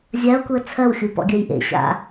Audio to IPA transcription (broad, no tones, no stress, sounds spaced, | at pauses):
zʲ a ʊ̯ k u ə̯ t͡sʰ ɜ w xʲ u p ɔ̰ ɡʲ ɜ j ʔ ḛ ɕ a̰